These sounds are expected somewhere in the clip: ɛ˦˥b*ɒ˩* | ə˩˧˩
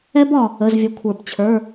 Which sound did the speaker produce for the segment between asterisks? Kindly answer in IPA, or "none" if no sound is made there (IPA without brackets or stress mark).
ɒ˩